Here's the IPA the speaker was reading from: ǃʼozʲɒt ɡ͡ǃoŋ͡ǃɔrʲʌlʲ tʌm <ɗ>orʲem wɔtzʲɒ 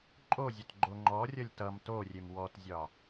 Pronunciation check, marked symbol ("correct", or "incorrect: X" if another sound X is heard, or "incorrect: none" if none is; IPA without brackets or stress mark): incorrect: t